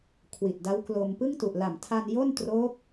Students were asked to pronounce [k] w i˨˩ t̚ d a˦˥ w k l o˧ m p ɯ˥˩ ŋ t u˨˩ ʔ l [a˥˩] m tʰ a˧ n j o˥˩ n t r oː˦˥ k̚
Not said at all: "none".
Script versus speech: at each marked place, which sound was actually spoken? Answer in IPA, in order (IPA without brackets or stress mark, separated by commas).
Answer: kʰ, a˨˩